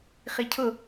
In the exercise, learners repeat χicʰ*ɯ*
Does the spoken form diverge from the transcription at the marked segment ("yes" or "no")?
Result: yes